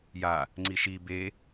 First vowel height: low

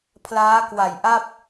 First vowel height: low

